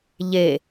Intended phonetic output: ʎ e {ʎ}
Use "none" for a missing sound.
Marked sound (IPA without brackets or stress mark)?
none